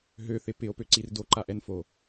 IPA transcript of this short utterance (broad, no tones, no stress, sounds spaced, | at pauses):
ɦ ø θ ɪ p ɪ o̯ p ø ǀ i r d o ǃ a ʔ ɛ n f o